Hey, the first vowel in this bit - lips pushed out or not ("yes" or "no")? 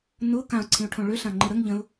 yes